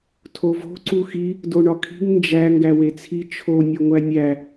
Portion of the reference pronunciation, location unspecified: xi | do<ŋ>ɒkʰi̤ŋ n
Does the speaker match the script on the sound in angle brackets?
no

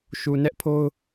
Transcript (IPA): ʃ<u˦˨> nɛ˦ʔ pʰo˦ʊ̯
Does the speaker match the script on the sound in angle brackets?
no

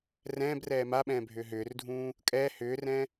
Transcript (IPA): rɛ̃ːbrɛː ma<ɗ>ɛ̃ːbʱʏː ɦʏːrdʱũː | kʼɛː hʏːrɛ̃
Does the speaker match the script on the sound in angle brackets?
no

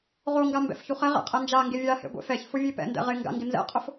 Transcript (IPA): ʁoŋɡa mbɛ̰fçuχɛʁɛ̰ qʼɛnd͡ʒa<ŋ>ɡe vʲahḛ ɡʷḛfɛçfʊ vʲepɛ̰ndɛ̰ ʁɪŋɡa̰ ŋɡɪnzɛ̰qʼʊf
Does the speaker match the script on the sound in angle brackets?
yes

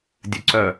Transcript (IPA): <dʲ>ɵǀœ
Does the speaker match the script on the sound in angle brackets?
yes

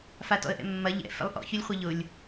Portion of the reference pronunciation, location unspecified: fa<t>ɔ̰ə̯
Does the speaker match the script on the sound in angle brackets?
yes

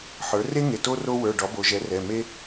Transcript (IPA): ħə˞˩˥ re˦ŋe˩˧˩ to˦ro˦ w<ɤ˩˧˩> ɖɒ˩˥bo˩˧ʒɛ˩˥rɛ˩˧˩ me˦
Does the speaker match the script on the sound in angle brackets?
no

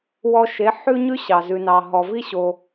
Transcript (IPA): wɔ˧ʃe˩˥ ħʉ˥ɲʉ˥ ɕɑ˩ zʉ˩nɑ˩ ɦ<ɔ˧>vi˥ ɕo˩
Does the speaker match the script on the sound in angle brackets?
no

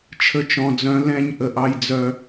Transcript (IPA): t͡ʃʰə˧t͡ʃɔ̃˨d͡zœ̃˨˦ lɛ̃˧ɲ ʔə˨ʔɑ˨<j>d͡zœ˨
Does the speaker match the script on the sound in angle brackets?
yes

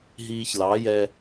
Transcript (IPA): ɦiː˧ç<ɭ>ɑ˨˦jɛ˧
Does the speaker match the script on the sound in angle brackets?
no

